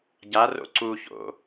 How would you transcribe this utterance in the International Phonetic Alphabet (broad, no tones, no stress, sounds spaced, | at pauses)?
ɟ a r o̰ ǀ u ç o̰